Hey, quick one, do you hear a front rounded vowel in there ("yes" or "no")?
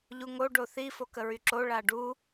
yes